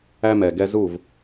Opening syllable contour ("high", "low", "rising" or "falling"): high